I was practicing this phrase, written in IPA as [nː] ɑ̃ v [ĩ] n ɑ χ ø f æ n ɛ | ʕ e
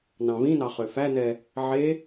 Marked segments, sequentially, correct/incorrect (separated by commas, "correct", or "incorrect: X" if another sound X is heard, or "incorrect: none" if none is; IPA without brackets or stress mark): incorrect: n, correct